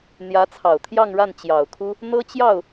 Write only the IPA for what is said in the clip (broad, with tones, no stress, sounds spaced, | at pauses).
n̪ j ä˧˥ t͡sʰ ɑ˨˩ ʊ̯ t̪ʰ j ɑ˥˧ ŋ ɻ a˥˩ n t͡ɕ j ɑ˨˩ ʊ̯ kʰ u˥ | n̪ ɤ˥ t͡ɕ j ɑ˥˩ ʊ̯